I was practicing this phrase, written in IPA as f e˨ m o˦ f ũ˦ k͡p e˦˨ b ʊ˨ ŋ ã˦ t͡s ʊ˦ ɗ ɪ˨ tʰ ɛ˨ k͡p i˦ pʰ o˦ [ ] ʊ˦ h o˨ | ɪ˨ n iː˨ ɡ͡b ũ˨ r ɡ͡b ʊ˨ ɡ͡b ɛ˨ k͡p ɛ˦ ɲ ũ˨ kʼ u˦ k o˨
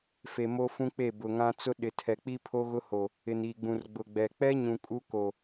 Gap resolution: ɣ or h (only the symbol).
ɣ